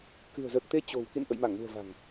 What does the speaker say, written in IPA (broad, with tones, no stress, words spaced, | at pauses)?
kɨ̤˨˩ə̯zəː˨˩k̚t̪e˨˦ t͡ɕo̤˨˩w kḭ˧˨n ʔə̰˧˨jma˧˩ŋnṳ˨˩ə̯ va̤˨˩ŋ